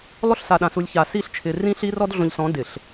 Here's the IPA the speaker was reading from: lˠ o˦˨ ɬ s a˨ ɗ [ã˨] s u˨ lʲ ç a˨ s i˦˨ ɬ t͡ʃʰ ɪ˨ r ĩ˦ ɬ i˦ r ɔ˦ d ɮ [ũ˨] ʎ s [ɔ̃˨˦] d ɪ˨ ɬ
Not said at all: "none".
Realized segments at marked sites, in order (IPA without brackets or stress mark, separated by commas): ã˨, õ˨, ɔ̃˨˦